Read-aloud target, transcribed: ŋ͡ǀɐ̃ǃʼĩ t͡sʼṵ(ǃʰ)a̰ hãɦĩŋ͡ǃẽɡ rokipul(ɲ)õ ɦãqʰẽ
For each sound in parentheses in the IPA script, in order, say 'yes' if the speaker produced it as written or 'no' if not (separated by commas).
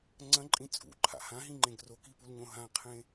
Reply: yes, yes